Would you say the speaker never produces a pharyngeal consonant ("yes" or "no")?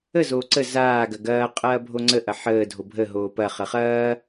no